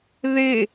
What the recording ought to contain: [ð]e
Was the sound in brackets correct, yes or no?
yes